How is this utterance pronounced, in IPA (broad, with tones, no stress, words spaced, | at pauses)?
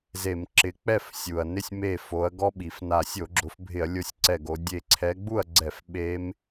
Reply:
ze˧˩˧mǁɪ˨˦ k͡pɛ˥˩fsʲu˩ɐ̯ nɪ˥˩sʲ me˧˩ fo˨˦ɐ̯ ɡɔ˦˥ɓi˩fna˧˩ sʲo˧˩˧ɡ͡ǁʊ˨˦fbʱɪ˧˩˧ɐ̯ lʲo˥˩sʲǀɛ˧˩ɡo˨˦ dʲe˧˩ ǀʰɛ˨˦ɡ͡bu˥˩ɐ̯ɡ͡ǀɛ˧˩˧f ɓe˦˥m